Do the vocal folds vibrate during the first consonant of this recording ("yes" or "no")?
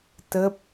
no